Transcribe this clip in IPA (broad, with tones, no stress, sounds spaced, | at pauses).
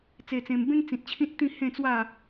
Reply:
t͡s e˧ t͡s ẽ˧ m b ẽ˦ ŋ t͡s ĩ˨ t̚ t͡ɕʰ ĩ˦ t̚ t̪ ĩ˥˧ h ẽ˥˧ t͡s w a˥˧